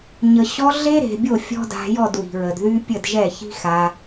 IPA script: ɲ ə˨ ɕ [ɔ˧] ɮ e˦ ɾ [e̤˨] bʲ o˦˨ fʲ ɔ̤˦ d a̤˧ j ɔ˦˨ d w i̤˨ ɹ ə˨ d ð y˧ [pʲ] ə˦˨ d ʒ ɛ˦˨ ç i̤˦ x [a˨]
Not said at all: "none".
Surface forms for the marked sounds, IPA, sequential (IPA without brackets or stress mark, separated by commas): ɔ˧, e̤˨, pʲ, a˧